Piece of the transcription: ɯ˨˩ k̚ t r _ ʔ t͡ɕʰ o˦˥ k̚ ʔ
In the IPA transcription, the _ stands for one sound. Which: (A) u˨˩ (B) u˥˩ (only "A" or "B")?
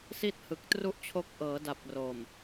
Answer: B